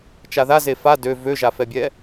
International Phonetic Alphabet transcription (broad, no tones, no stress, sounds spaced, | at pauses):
t͡ʃ a ð a z e f a d ø v ø ʒ a f ɛ bʲ ɛ